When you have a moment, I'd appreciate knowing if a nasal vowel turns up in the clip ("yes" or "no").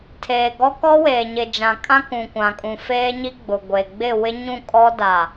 yes